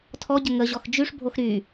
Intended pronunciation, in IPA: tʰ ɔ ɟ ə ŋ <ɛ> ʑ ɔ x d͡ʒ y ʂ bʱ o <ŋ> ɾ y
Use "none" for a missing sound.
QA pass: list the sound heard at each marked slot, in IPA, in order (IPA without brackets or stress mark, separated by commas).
ə, x